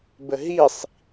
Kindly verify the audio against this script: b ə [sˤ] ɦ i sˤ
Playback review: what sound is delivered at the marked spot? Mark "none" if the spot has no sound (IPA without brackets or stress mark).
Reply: none